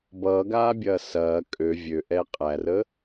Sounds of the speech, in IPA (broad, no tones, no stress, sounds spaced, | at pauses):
b ʌː ɡ aː bʲ ɐː s ɐː kʼ ø vʲ ø ʔ ɛ qʼ æ r ə